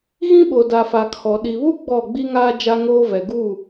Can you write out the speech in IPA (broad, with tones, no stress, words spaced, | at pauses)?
ɣĩ˦ɓo˨ da˨fa˨kʰɔ˨ ɗi˨βu˦ ɡ͡bɔ˦˨ ɡ͡bi˦ŋaː˦ d͡ʒa˦ŋoː˦ vɛ˨ɡuː˦˨